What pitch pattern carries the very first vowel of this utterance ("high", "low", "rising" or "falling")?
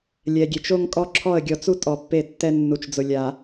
low